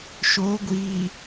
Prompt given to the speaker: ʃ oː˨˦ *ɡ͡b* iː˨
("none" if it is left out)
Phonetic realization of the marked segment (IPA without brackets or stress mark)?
ɡʷ